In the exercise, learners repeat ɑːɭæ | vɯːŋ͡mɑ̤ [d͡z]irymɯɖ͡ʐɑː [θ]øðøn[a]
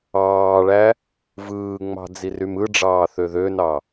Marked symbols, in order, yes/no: yes, yes, no

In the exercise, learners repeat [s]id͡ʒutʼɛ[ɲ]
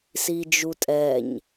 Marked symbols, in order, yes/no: yes, yes

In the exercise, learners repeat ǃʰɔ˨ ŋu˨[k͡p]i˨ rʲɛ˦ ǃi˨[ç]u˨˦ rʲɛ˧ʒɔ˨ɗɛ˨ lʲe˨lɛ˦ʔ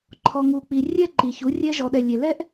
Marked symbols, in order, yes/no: yes, yes

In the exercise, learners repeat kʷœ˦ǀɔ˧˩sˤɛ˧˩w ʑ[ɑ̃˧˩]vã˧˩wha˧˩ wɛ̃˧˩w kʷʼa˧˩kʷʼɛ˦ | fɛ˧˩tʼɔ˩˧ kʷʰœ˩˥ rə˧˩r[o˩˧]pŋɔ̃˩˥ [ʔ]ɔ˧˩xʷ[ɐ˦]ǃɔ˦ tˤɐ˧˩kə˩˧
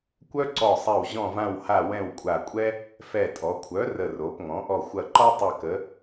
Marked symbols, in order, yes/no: no, yes, yes, no

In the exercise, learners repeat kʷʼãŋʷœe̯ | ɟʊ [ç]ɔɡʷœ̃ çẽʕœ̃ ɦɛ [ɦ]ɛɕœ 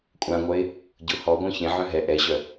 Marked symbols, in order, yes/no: no, no

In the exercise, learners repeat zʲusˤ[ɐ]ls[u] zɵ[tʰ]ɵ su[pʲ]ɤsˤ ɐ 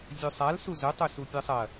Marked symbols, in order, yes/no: no, yes, no, yes

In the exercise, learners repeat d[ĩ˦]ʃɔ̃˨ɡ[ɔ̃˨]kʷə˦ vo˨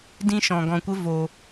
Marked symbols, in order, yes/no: yes, no

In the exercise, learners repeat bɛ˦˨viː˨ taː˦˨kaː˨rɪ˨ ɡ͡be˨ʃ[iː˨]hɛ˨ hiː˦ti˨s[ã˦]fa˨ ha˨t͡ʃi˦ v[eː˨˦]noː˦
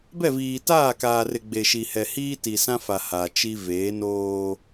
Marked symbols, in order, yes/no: no, yes, yes

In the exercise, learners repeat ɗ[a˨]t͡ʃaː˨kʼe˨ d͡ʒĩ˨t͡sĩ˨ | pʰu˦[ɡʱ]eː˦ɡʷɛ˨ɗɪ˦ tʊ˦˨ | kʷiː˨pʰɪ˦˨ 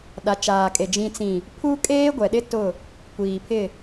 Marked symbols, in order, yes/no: yes, no

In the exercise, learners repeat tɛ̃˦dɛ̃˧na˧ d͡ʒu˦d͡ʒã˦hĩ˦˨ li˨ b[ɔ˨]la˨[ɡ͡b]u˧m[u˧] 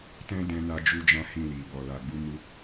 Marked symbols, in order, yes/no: yes, yes, yes

